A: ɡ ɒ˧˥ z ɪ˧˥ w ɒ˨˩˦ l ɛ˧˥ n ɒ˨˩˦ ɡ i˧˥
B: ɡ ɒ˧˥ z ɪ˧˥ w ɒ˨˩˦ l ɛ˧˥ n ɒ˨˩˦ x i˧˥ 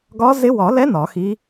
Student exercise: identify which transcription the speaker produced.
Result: B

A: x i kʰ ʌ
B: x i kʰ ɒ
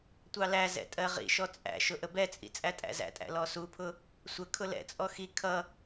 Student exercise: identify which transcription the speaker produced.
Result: A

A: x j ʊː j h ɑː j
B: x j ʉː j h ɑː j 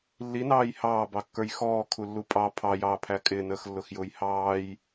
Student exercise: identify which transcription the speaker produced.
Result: A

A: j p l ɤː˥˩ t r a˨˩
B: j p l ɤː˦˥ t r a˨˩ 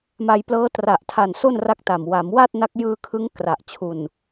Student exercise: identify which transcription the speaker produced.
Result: B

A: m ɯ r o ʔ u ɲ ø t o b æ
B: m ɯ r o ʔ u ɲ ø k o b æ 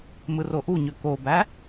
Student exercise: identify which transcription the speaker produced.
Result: B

